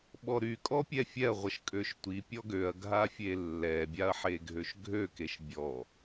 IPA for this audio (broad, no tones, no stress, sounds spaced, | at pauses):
ɓ ɔ ɾ y kʼ ɔ pʲ ɛ fʲ ɛ ɐ̯ ʁʷ ə ʃ kʼ ø ʃ tʷ i pʲ ɔ ɡ ø ɐ̯ ɡʱ a fʲ e lː ɛ bʲ a ɐ̯ ħ e ɡʱ ø ʃ ɡʱ ø k e ʃ bʲ ɔ